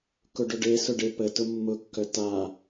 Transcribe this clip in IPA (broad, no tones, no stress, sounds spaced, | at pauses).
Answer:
k ʊ ɖ ʊ ɖ e s ʊ ɖ e p ə t ʊ mː ʊ kː œ t a